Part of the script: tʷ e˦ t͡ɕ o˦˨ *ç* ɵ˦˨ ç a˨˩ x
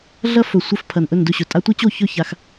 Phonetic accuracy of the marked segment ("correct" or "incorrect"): correct